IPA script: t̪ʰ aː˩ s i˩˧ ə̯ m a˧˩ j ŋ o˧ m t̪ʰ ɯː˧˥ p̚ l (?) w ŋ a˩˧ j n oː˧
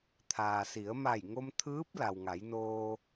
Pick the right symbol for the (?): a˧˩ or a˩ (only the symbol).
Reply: a˩